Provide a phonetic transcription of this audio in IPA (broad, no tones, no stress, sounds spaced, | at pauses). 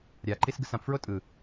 ɾʲ a ǃ i s ɡ ɯ s ã p f ɹ o tʼ ɯ